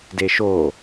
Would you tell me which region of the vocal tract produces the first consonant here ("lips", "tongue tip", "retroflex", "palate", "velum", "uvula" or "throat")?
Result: tongue tip